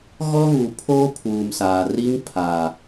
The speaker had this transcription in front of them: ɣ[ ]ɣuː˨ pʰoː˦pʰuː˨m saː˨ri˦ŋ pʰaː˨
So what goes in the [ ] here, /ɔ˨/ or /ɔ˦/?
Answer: ɔ˦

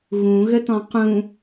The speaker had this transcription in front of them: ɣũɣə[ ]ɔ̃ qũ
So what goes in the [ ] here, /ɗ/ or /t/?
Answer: t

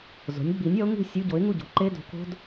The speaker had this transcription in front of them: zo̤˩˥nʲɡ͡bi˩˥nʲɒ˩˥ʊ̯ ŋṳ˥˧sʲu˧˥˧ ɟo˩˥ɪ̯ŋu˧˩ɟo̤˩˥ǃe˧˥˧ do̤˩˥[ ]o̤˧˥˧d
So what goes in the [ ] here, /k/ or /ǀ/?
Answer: k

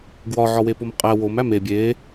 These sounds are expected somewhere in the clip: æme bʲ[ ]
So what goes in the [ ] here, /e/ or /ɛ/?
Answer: e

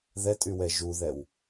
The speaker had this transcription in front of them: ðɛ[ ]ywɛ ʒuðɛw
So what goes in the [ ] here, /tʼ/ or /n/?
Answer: tʼ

